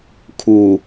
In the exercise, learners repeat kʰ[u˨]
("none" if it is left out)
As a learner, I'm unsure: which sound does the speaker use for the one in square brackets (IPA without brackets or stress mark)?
u˨